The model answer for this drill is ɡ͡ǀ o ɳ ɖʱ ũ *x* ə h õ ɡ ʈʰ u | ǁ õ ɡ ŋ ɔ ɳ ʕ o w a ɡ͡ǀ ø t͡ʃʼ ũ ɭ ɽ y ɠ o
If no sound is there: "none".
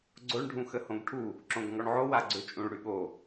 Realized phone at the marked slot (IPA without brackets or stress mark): x